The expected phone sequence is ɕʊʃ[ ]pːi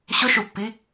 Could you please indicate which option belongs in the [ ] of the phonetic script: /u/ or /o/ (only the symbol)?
u